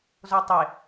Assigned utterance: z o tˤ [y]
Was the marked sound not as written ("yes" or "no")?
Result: yes